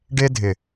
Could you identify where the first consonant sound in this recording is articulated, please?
retroflex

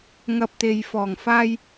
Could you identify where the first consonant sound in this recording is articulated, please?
velar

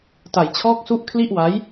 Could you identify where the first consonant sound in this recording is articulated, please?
alveolar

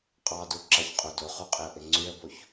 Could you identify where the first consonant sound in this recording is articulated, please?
uvular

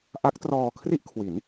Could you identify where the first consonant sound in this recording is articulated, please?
glottal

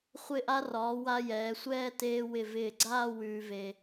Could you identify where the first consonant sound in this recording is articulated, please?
uvular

